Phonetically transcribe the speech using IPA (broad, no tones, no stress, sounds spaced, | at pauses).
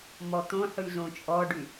m ɔ t̪ õ ħ ʉ z õ t͡ʃʼ ɔ ɖ ʉ